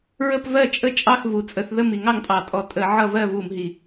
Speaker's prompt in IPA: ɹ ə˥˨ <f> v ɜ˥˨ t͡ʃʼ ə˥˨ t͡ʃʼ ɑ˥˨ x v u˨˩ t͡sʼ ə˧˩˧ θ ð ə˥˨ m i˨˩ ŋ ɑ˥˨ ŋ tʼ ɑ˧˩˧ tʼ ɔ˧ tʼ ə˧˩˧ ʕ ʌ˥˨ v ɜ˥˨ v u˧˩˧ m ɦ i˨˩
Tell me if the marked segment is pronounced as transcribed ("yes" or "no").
no